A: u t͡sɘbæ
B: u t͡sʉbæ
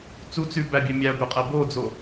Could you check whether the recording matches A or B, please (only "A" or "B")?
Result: B